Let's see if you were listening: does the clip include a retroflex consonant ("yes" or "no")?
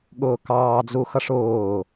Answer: yes